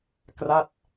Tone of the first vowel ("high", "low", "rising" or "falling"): falling